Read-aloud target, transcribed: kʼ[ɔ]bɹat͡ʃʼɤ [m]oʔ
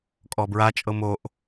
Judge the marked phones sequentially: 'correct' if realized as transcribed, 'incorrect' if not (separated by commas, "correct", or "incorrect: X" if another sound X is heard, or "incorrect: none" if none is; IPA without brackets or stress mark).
correct, correct